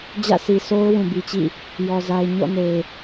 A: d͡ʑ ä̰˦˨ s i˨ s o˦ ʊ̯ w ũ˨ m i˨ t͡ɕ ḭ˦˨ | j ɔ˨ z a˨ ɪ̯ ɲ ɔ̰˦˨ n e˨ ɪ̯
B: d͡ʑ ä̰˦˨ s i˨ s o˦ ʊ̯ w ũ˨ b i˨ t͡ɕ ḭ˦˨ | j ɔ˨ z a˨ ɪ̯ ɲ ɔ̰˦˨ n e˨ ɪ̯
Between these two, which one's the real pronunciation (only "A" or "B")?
B